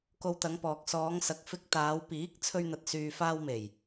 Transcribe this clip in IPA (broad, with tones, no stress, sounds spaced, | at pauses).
k o˧ w t̪ ɐ˨˧ ŋ p ɔː˨ k̚ s ɔː˨˧ ŋ s ɐ˨ k̚ f ɪ˧ k̚ t̪ aː˨˧ w p iː˨˥ k̚ t͡sʰ ɵ˧ ɥ n̪ ɐ˨ t̚ s yː˨ f aː˧ w m e˨˩ j